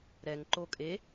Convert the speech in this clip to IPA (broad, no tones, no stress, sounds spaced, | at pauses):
ɾ ɛ ŋ ǃ o kʼ e